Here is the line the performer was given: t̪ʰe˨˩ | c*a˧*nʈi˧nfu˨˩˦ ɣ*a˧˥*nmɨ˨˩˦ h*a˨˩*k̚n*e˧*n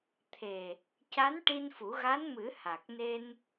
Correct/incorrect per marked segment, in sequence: incorrect: a˧˥, correct, correct, correct

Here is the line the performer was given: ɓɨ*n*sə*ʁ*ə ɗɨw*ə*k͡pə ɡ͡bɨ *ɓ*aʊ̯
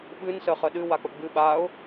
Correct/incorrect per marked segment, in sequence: correct, incorrect: χ, incorrect: a, correct

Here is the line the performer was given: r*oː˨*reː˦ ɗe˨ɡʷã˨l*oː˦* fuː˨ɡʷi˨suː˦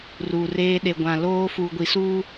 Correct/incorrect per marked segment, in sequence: incorrect: uː˨, correct

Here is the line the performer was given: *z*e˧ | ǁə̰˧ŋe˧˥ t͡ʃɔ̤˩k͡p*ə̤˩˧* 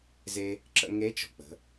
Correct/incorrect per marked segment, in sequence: correct, correct

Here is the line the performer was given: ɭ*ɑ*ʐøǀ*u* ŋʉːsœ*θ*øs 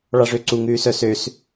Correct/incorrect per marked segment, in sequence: correct, correct, incorrect: s

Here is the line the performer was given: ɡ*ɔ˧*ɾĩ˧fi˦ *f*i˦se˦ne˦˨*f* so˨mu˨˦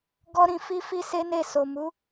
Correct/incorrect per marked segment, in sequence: incorrect: ɔ˦, correct, incorrect: none

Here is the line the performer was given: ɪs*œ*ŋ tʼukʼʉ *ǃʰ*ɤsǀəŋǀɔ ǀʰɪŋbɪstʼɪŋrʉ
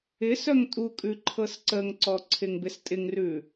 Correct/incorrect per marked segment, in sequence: correct, correct

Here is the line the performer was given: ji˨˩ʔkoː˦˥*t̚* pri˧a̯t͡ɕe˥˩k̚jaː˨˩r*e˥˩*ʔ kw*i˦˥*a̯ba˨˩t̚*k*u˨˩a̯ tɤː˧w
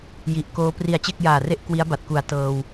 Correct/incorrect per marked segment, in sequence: incorrect: none, correct, correct, correct

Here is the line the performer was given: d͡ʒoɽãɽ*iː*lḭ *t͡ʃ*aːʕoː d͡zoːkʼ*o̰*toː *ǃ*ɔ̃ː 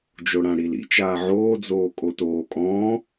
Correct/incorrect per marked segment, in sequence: incorrect: i, correct, incorrect: o, incorrect: kʼ

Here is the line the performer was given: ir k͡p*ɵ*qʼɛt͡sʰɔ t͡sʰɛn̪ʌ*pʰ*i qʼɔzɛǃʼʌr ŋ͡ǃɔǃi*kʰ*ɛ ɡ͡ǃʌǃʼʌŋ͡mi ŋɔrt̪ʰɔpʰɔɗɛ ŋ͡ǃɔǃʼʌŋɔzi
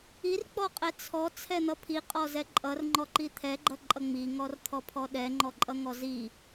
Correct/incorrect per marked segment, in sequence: incorrect: ɔ, correct, incorrect: t̪ʰ

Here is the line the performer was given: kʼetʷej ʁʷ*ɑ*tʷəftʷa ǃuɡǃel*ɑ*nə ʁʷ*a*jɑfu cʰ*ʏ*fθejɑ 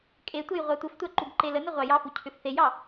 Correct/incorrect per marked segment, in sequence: correct, incorrect: ə, incorrect: ɑ, correct

